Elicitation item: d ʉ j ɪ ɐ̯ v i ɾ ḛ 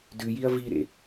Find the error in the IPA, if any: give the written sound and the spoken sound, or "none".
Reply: ɪ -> i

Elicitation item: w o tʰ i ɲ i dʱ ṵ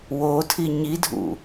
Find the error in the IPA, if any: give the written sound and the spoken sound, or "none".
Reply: none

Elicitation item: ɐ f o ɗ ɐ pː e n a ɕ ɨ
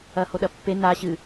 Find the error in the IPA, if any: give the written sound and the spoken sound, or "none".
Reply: f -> h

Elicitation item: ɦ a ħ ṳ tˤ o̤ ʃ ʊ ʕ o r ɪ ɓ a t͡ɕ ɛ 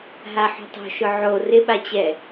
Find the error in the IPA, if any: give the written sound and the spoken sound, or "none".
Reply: none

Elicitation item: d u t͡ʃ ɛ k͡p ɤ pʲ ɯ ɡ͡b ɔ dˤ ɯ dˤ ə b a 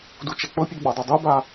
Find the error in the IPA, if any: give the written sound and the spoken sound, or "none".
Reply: ə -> ɯ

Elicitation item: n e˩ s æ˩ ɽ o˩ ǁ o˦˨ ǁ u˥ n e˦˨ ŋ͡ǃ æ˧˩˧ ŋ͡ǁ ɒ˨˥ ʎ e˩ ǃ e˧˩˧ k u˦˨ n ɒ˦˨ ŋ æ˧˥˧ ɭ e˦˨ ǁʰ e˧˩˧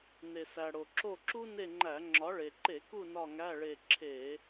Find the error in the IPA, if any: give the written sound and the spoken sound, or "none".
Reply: ʎ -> ɭ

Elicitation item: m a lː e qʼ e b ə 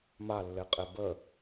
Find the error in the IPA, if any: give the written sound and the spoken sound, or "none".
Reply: none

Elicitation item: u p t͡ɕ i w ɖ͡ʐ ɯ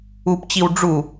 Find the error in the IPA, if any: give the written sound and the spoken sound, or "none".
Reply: ɯ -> u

